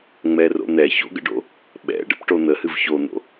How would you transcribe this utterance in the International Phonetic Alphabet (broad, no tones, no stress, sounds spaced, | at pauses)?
ŋ͡m ɛ r o̰ n̪ ɛ ç o̰ ɡ ə̰ ɖ o̰ | ɓ ɛ̰ ɖ ə̰ p ʈ o n̪ ə h ɨ v ç o n̪ o̰